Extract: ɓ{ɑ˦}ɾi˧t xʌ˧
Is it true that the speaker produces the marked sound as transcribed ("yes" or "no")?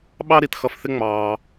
yes